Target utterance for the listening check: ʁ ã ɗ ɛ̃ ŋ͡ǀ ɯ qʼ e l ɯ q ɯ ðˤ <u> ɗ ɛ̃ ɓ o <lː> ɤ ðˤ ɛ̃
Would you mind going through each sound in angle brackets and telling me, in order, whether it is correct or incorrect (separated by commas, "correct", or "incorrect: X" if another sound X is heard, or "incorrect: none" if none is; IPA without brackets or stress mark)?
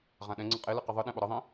incorrect: ɯ, incorrect: ɾ